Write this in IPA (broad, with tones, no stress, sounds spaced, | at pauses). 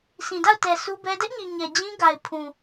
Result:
s ĩ˨ d a˦˨ ʊ̯ t ɛ˨ sʰ u˦ b ɛ˦ d ɛ˦ ʔ ɲ i˨ ɲ ɛ˨ d͡ʑ ĩ˦ ɡ a˨ ɪ̯ pʰ ũ˨